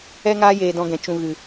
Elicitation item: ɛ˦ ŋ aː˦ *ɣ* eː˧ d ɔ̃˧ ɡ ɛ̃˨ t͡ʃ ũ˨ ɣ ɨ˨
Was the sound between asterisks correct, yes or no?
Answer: no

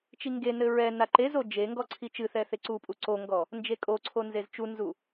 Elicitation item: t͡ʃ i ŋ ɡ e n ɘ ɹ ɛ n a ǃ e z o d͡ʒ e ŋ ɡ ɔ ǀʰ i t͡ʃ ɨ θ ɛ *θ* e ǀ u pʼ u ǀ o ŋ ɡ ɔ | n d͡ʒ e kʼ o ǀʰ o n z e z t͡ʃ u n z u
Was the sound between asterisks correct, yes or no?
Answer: yes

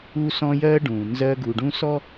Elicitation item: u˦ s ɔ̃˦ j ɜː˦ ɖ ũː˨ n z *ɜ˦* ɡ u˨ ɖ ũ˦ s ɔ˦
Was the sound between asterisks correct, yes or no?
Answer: yes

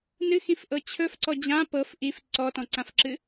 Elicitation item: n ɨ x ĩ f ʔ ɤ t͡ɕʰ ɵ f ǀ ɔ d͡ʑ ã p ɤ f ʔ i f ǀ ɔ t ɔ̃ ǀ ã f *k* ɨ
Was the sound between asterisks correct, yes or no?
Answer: no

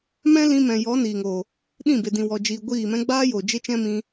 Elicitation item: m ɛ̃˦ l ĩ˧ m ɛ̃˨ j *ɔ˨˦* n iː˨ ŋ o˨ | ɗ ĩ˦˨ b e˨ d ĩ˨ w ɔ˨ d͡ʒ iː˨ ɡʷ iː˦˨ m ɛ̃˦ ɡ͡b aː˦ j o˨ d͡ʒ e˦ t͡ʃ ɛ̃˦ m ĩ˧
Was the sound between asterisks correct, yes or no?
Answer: yes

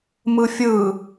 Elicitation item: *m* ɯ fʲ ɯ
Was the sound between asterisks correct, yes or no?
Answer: yes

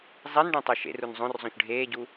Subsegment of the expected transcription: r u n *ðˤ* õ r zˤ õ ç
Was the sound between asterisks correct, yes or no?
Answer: no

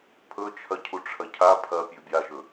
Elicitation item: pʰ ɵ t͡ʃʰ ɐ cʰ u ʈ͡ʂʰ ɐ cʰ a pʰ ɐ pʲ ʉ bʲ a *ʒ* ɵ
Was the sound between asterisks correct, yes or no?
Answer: yes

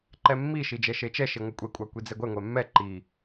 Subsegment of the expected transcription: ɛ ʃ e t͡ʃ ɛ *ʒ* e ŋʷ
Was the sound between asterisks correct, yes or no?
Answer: no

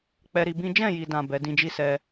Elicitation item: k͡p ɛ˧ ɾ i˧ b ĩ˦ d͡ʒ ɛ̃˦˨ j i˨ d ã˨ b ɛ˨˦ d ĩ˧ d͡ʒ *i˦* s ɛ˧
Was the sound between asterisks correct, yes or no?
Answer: yes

